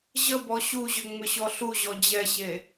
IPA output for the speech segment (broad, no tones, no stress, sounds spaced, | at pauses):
ʑ ə b ɔ ɕ u ʑ ʏ ŋ͡m ʏ ɕ ɔ ɬ u ʑ ɔ d͡ʑ ɛ ɕ e